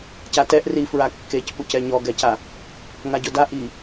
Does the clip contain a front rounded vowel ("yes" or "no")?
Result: no